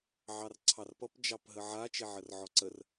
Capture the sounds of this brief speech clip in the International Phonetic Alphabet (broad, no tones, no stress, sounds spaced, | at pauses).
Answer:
ʕ ɑ r ǀʰ ɑ r p ʌ p d͡ʒ ɑ p ɦ ə ʕ a t͡ʃ e ʕ ə r ʕ ɔ ǀ ə r